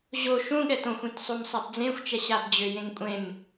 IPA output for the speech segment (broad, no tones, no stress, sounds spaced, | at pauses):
ʑ o ʃ ũ ɠ ɛ t õ xʷ ẽ t sˤ o m sˤ a b d͡z ẽ xʷ t͡ʃ ɛ ɕ a b d͡ʑ ø j ẽ ŋ kʷʼ ẽ m